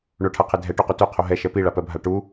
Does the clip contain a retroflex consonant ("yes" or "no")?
yes